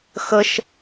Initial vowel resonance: oral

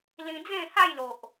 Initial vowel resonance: nasal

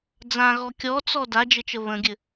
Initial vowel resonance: nasal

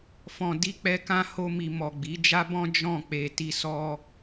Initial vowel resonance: nasal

